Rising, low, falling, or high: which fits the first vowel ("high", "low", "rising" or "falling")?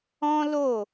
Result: high